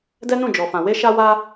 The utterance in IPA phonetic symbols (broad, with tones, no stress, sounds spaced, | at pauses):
d ɛ˦ n ũ˦˨ d͡ʒ ɔ˨ f ã˨ w e˧ ʃ a˧ w a˧